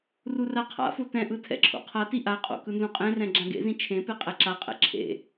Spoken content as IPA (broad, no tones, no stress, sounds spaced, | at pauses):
r u r a qʰ a̰ f o t ɛ̃ ʔ ɯ tʰ ɛ̰ ǁʰ o̰ qʰ a t i ʔ a qʼ o̰ k ɯ n z ũ qʼ ẽ r ɛ̃ ɡ͡ǁ ã ɡ ḛ z ĩ t͡ʃʰ ẽ p e qʼ ɛ ǁ a qʼ ɛ̰ ǁʰ ḛ